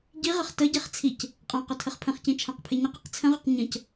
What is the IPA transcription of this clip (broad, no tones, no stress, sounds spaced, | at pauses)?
ɟ i ʁ ə χ t ə ɟ e χ t͡sʰ i c | qʼ ã q ʊ tʰ ə χ pʰ ə̃ χ c ĩ t͡ʃʰ ã q pʰ e ɲ ə q i q t͡sʰ ə̃ ʁ ʊ q ɲ ə̃ c